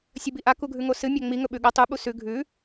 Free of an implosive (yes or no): no